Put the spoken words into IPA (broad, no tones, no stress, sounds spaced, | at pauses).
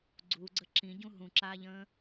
ɡ͡ǀ u ɡ͡ǀ ə ǁ ĩ ɟ ũ ɦ ũ ǁ aː ʎ ə̃ː